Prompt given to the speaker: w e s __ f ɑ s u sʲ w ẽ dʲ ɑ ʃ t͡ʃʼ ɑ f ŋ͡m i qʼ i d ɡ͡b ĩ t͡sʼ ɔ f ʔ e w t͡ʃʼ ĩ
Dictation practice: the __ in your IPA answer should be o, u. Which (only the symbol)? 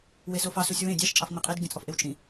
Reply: o